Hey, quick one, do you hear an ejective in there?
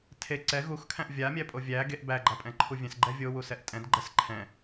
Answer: yes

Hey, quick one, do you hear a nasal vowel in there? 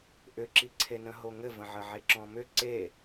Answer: yes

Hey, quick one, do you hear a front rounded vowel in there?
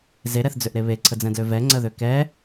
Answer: yes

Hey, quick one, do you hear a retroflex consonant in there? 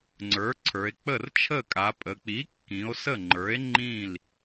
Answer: no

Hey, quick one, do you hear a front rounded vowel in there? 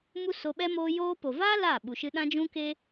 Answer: no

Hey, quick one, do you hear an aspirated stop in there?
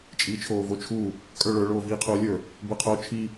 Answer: yes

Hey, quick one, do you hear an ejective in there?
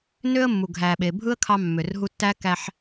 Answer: no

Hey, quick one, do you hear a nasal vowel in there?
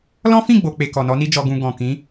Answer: yes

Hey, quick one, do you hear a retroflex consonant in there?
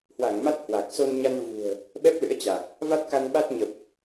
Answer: no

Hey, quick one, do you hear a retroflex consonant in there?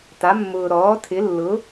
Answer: no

